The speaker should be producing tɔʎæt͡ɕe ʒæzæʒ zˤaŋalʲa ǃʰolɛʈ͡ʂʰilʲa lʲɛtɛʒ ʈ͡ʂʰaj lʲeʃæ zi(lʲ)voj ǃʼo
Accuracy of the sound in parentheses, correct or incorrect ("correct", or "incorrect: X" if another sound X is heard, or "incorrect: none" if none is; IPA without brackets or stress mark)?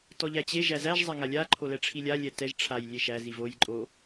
incorrect: none